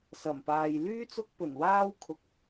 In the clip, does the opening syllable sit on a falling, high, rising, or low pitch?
low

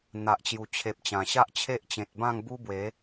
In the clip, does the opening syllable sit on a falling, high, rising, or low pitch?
low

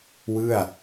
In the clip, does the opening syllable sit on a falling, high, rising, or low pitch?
falling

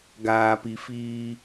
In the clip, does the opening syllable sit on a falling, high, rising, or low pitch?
low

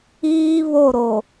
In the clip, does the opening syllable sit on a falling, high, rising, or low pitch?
high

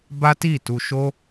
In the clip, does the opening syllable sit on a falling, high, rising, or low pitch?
high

